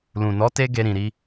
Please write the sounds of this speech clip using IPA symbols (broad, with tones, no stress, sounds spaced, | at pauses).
l ũ˨ n ɔ˨˦ t e˧ ɡ e˧ ɾ ĩ˨ ɾ i˧